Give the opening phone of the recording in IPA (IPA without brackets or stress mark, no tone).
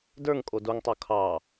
d